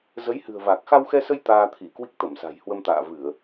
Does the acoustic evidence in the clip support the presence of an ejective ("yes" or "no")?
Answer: no